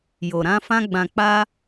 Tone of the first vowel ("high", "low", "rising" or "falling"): low